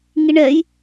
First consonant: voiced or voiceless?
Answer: voiced